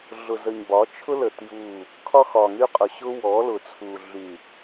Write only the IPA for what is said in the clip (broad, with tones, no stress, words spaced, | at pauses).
ɮʊ˨zə˨ɲbɒ˨˦ t͡ʃʰʊ˦lə˨ tju˦˨ | kʰɒ˦xɒ˨ŋy˦qʼʊ˨ ɕʊ˦wɔ˨˦lʊ˨t͡sʰu˨ ɮy˨